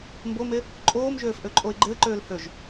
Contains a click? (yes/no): yes